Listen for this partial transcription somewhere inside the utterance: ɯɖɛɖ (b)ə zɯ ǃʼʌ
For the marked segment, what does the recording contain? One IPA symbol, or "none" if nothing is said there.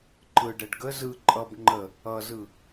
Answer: ɡ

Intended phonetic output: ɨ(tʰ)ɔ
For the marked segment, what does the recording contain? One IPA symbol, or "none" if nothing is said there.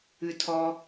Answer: tʰ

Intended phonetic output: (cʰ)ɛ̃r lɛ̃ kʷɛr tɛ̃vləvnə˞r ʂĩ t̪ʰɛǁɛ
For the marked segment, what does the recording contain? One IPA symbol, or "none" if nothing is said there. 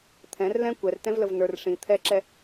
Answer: t̪ʰ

